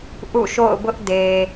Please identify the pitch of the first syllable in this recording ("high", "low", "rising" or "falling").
falling